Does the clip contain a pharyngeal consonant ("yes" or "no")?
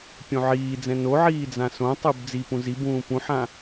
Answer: yes